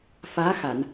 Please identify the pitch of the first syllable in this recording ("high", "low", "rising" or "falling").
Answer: rising